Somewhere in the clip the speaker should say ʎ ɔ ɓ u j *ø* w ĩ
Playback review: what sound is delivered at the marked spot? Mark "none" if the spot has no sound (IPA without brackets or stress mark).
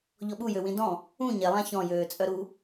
ø